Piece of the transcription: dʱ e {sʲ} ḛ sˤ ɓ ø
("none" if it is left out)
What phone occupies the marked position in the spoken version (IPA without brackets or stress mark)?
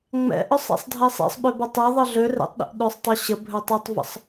sˤ